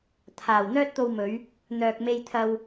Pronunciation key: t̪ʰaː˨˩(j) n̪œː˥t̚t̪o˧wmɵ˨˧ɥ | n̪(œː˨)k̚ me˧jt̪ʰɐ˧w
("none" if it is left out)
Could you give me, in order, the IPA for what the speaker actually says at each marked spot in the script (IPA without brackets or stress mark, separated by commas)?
w, œː˨